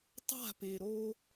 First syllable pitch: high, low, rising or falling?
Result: falling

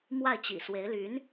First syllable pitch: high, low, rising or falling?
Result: falling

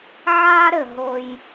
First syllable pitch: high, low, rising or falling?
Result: high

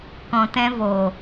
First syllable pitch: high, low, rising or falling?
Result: low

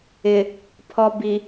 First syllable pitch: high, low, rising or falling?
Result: low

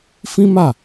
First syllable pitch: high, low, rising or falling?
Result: high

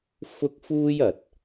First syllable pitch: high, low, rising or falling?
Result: high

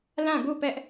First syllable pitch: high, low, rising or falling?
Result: falling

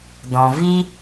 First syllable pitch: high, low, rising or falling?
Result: low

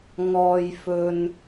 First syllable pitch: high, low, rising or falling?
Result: low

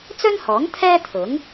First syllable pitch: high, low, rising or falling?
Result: high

